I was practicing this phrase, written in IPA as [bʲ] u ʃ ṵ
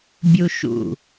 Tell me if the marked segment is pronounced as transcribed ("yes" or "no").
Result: yes